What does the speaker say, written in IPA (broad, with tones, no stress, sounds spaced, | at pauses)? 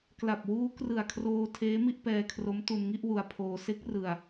k l a˨˩ p̚ w uː˦˥ k r ɯ˨˩ a̯ kʰ r oː˧ tʰ eː˦˥ m i˥˩ ʔ p ɛː˧ kʰ r o˦˥ m t u˧ n ŋ i˥˩ ʔ w u˧ a̯ pʰ oː˧ s e˦˥ k̚ r ɯ˧ a̯